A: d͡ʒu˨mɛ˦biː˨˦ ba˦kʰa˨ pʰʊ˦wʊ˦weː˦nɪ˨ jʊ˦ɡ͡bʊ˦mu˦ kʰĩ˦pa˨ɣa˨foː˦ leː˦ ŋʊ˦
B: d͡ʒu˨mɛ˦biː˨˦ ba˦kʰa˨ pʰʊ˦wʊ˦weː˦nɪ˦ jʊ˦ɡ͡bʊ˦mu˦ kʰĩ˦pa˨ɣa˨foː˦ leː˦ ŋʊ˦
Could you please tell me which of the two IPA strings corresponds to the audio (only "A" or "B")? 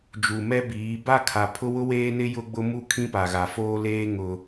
B